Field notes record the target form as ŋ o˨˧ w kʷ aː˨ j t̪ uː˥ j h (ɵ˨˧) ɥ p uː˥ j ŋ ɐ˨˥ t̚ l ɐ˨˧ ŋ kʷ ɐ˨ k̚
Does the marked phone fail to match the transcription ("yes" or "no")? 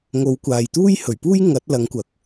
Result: yes